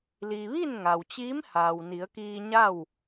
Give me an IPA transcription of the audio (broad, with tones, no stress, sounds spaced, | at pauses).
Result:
l iː˩ ʋ i˥˨ n ŋ a˩ w t͡ɕ iː˧˥ m h aː˩ w n i˩˧ ə̯ k iː˧ ɲ a˥˨ w